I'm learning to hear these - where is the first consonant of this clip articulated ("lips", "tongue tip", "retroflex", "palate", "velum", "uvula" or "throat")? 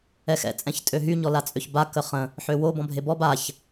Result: velum